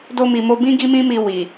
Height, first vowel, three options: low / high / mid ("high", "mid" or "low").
mid